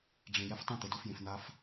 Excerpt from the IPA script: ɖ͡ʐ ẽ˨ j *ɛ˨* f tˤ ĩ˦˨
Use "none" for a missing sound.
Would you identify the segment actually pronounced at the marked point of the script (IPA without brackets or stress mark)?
ɛ˧